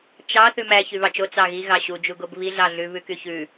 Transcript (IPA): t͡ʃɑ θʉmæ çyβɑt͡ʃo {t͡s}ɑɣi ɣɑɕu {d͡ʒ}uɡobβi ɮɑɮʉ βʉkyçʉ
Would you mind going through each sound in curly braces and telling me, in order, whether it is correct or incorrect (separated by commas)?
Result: correct, correct